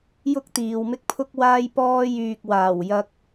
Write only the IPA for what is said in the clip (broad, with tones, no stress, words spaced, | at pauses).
jʊ˥k̚t̪iː˨wmɪ˥k̚pʰʊ˥k̚ waː˥jpɔː˥jyː˧k̚ waː˨˩wjɐ˧k̚